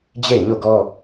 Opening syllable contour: falling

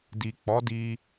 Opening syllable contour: low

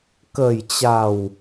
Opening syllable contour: low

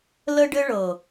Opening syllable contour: high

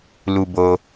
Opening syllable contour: high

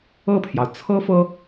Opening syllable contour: falling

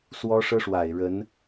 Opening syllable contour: high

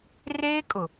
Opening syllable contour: high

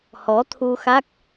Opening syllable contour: rising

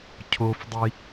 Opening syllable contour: high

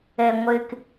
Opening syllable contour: low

